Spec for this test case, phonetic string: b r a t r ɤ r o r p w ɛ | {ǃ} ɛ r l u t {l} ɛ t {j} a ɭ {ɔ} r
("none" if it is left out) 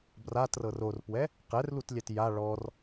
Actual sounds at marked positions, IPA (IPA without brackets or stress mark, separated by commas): q, lʲ, j, ɔ